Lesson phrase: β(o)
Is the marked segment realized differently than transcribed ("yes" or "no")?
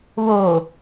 no